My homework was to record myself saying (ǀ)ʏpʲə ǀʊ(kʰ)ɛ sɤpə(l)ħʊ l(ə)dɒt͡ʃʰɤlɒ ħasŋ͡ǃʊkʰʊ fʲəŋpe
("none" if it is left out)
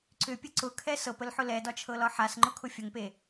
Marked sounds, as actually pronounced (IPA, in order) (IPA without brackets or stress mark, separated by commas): ǀ, kʰ, l, ɛ